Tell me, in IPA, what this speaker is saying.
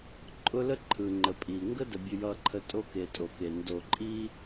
ǃʼʊ˦lə˦ ǃʰɯ˨ŋ͡ǃə˨pʼi˨ ŋɡə˦də˨ bʲʊ˨jʌ˨ǃʰə˨ tʼo˦ke˨ tʼo˨ke˨ ndo˨ǃʼi˦

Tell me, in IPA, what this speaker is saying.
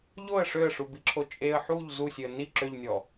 ʎoə̯ ʂøə̯ʂubiǁʰo t͡ʃʼeə̯ ħuʎ zusʲøə̯ ni ǁøʎnʲɔ

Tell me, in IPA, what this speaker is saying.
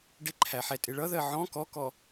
ɖɪǃʰæħɛtʼɪ ɭʌðɜ ʕɔ̃ kɔkɔ

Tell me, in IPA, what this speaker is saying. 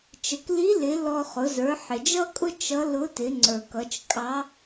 t͡ʃə˩kli˧˥lɪ˩˧ lɔ˧ χʊ˩˧ zə˞˩˧ħɪ˩d͡ʒʌ˥kʼʊ˥ t͡ʃʌ˧˥ lʊ˧˥tɪ˩˧ŋ͡ǀə˞˩kʌ˩˧t͡ʃ kʼɑ˧˥

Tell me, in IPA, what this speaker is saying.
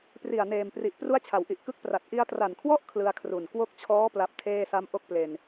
pri˨˩a̯neː˨˩mpri˨˩ʔ pru˦˥a̯t͡ɕʰa˩˦wʔi˨˩ʔ kɯ˥˩k̚pra˨˩t̚ ʔi˧a̯tra˨˩nkʰwɔ˥˩ʔ kʰlɯ˧a̯kʰru˨˩n kwo˦˥k̚t͡ɕʰɔː˦˥ pla˦˥p̚tʰeː˥˩sa˥˩m ʔo˥˩k̚ple˧n

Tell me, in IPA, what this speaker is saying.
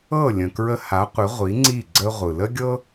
ɤ˥˩ lʲə̃˩kɹə˧ ha˩˥qʷɪ˩˥ ʁʷi˩˥ŋ͡ǀi˥˩ ɡ͡ǀə˥ʁʷɯ˩ lə˥ɡʲɤ˥

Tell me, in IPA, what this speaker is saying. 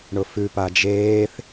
ɳʊfʉ pad͡ʒeːθ

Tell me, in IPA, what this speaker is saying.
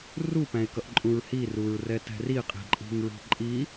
rupæ̃ɪ̯kʌʔǃʼũɹ hiruɹrɛtɛ̤ riqʼi̤ǃʼi̤ŋɹi̤ ǃʼi

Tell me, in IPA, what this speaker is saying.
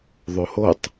ðˤohotˤ

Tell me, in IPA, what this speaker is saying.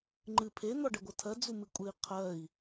ŋ͡ǃɨ pʰe n̪ɔɖɛɡʷɤtʰɜ d͡zumɨkʷʼɨi̯ qʰɜi̯

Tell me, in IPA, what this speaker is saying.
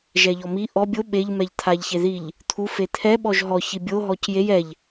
ʒɛʎɔmi ʔɔ bʲo ɓeʎ mɛʎt̪ʰaʎçeðiʎ | t̪ʰu fet̪ʰɛ ɓɔʒɦɔ çibʲo ɦɔcjej ɛʎ

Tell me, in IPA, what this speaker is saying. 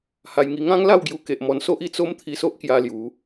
ha˧jŋi˧ ŋã˦ŋla˥˧wɡju˧ke˨ʔ mɔ˧nso˦ʔ i˧t͡so˦m t̪ʰi˧so˦ʔkja˧ lju˨˦

